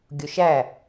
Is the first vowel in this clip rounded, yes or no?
yes